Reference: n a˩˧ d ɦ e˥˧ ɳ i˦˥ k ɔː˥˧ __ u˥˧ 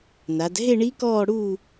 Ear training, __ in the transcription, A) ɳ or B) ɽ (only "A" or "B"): B